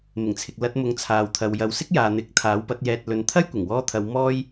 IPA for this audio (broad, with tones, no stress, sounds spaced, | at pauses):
m ɪ˨˩ ŋ t͡sʰ ɪ˨ k̚ l ɐ˧ t̚ m ʊ˨˧ ŋ t͡sʰ aː˨ w t̪ʰ ɐ˨ w j ɐ˨ w s ɪ˥ k̚ j aː˨ n̪ ɪ˨˥ k̚ t̪ʰ aː˨˥ w p ɐ˨˥ t̚ j ɛː˨ t̚ l ɵ˨ n t̪ʰ ɐ˥ j kʷ ɪ˨˩ ŋ w ɔː˥ t̪ʰ ɐ˧ w m ɔː˥ j